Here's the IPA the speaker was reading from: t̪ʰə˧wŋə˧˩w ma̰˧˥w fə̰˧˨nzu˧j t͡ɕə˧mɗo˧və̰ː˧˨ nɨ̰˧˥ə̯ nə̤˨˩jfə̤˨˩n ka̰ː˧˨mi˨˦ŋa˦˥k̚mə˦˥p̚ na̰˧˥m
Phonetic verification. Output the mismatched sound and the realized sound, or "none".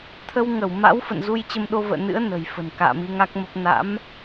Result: none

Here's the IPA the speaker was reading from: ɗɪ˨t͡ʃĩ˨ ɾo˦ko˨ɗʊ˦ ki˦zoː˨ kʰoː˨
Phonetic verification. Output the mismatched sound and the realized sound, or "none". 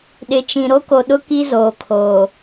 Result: none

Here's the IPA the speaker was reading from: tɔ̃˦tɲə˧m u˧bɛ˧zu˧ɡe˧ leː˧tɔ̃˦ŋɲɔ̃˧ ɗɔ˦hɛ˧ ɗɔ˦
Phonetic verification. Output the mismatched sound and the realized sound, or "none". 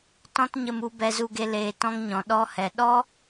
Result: none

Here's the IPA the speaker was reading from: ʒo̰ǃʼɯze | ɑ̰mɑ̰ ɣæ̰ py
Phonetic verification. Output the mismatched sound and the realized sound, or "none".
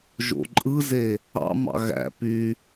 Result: none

